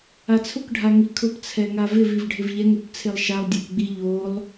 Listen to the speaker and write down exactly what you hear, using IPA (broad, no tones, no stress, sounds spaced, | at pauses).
a t͡sʰ ʊ k ɖʱ a ŋ i kʰ ʊ p t͡sʰ ɛ ŋ a v ɪ v i v ɖʱ ɪ v ʎ ɛ ŋ u p t͡sʰ e lˠ ʃ a lˠ dʲ e p ɡ͡b i ʎ o lˠ